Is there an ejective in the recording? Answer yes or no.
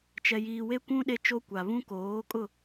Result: yes